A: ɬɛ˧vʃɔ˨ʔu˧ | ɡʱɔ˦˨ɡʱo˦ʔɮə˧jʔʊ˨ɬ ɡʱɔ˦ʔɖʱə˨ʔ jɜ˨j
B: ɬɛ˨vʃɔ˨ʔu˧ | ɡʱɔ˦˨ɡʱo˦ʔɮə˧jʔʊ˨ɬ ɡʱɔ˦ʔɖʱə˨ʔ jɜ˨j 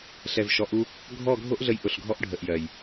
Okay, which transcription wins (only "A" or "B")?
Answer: B